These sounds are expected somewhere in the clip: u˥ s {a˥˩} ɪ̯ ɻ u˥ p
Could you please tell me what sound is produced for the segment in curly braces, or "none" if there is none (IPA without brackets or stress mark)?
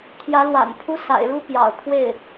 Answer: a̰˨˩